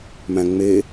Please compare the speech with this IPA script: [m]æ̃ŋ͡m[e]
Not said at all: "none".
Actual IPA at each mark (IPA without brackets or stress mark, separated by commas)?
m, e